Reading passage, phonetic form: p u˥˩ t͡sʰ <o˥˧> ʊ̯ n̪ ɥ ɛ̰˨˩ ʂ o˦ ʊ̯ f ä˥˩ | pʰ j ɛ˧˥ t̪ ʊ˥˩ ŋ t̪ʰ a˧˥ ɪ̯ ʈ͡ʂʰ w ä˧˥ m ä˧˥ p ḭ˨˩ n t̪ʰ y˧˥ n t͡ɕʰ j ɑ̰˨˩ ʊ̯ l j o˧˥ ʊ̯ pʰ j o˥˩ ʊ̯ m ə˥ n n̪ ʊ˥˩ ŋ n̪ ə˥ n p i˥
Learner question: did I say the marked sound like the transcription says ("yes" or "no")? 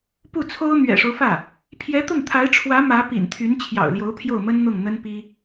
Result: no